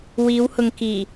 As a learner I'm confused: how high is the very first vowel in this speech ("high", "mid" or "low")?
high